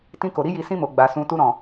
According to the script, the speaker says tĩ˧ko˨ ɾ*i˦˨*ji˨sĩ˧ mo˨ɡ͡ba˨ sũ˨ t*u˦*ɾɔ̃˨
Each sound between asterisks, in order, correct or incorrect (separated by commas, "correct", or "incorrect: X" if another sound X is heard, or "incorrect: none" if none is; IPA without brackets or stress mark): incorrect: i˧, incorrect: u˧